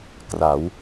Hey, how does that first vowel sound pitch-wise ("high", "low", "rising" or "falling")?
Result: rising